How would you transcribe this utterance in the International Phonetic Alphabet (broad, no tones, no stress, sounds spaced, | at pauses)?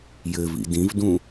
j ɘ v ḭ d ĩ v d ũ